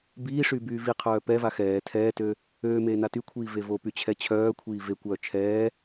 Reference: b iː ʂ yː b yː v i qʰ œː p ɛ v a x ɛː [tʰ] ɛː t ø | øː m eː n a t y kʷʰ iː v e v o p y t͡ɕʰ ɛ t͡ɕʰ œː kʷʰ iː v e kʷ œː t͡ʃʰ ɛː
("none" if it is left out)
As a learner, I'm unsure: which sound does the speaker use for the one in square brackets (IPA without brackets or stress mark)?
tʰ